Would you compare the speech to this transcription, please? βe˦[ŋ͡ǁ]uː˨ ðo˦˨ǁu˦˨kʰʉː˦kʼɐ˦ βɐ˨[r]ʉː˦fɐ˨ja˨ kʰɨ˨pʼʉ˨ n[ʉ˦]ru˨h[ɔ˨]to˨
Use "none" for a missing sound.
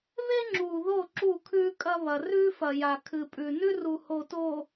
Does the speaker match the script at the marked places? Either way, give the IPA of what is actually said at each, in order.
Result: ŋ͡ǁ, r, ʉ˦, o˨

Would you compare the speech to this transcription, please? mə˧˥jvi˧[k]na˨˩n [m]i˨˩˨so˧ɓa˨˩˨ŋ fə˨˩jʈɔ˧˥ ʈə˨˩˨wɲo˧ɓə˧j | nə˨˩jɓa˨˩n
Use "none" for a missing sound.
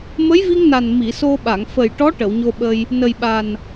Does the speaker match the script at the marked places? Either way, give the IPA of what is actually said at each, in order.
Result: ŋ, m

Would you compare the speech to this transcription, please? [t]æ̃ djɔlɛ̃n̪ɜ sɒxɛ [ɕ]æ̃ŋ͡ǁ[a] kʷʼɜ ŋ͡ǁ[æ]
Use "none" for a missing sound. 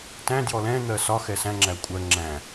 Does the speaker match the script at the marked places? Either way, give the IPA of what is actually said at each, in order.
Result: t, s, æ, æ̃

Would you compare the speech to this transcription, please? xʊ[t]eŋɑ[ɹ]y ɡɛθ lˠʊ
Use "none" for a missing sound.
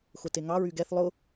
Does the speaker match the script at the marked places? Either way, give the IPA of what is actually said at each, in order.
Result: t, ɹ

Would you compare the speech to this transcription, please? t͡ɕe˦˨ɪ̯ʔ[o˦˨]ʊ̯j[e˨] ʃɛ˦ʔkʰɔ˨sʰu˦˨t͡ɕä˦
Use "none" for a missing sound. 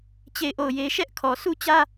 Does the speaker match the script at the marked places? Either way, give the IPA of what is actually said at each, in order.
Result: o˦˨, e˦

